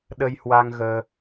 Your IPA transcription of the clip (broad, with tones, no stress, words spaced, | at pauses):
ɗə˧jhwa˧ŋɣəː˧